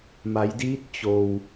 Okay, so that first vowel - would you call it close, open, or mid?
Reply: open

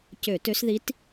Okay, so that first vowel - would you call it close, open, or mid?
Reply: mid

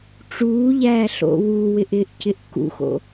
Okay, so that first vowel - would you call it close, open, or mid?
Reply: close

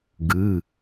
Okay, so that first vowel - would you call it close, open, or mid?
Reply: close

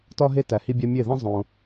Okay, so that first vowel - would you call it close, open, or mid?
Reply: open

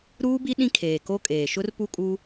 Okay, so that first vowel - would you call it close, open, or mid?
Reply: close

